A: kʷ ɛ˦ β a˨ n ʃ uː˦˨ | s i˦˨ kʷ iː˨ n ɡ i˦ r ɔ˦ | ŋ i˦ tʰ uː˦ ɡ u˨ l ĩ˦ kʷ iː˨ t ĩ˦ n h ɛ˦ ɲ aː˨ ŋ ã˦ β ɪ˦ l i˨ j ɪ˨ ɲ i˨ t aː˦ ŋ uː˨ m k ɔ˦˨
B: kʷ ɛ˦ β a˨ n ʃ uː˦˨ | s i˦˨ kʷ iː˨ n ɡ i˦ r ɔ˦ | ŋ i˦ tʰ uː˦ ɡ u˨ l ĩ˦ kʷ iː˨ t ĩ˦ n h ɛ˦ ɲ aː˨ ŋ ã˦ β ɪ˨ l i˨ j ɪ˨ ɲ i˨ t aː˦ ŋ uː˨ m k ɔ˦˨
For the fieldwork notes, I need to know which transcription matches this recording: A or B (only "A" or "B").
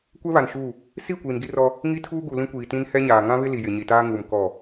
A